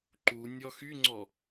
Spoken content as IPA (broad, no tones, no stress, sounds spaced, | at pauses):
ǃ u nʲ ɔ x y ŋ͡ǀ ɔ